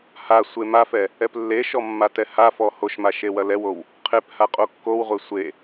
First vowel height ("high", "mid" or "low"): low